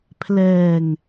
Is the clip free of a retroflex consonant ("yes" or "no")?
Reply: yes